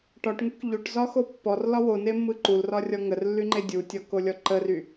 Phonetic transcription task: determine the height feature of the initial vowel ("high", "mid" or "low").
low